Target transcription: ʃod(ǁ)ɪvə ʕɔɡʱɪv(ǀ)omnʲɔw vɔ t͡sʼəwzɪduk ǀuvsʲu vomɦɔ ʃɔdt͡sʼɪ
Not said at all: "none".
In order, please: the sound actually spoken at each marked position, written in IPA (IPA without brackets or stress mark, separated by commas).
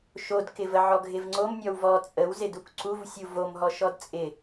k, ŋ͡ǀ